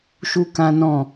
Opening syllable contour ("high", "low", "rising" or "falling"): high